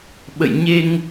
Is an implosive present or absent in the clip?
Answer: present